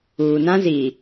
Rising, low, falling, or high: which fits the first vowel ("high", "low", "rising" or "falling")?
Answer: low